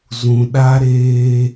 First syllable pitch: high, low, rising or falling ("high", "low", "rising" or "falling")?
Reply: low